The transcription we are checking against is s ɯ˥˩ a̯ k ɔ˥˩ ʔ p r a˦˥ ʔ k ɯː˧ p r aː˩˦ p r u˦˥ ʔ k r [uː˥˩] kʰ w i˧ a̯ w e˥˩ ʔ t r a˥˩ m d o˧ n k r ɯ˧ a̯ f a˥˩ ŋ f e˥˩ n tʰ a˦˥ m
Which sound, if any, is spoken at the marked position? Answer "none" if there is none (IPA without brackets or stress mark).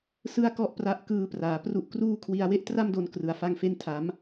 uː˥˩